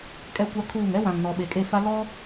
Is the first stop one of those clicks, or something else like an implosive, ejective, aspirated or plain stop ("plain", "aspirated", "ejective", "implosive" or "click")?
ejective